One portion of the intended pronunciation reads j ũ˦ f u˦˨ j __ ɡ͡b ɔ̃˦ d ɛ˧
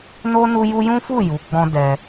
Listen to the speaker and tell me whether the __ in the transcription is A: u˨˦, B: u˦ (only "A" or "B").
A